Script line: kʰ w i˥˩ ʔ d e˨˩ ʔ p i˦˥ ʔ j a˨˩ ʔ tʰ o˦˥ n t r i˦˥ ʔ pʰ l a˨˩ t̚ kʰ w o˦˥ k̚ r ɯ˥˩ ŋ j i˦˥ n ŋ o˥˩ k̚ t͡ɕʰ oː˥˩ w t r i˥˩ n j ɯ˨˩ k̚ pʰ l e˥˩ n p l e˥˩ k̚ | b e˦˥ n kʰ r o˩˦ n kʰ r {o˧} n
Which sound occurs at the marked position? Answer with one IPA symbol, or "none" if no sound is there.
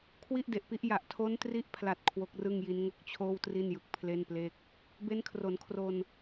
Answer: o˧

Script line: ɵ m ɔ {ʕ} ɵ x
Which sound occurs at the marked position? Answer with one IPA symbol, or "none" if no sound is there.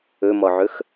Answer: ʕ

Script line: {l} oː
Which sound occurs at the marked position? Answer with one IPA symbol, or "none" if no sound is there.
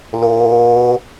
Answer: l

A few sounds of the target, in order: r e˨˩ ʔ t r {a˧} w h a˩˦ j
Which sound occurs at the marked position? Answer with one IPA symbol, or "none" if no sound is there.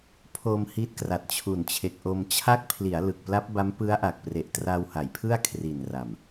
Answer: a˧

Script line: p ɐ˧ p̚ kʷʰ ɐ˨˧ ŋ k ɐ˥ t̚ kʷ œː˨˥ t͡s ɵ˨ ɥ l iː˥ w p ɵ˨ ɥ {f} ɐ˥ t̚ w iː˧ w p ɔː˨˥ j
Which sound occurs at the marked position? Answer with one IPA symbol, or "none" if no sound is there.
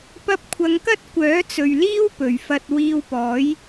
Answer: f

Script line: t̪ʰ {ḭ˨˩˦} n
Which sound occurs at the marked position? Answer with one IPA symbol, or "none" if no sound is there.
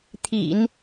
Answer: ḭ˨˩˦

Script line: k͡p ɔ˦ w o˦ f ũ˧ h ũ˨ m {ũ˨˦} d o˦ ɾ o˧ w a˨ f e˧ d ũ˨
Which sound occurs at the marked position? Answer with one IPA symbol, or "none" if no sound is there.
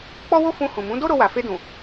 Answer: ũ˨˦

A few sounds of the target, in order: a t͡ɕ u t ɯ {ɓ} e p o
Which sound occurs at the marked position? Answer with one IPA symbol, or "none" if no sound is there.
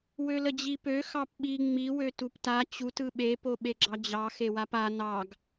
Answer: ɓ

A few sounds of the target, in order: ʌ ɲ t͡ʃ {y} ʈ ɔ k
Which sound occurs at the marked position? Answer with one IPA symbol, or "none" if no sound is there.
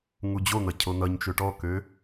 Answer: ø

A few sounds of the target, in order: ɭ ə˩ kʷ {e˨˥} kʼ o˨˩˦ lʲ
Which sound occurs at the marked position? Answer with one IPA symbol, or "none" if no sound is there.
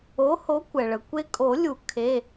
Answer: e˦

